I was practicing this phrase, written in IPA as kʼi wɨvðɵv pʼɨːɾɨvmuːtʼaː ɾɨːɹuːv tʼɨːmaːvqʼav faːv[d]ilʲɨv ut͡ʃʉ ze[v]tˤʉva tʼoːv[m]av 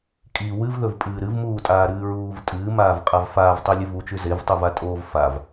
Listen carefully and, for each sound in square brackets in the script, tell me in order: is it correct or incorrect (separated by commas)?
incorrect, correct, incorrect